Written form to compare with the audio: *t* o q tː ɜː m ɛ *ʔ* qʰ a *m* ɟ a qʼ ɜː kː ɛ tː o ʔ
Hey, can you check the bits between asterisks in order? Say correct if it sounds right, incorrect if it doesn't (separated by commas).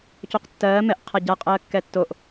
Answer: incorrect, correct, incorrect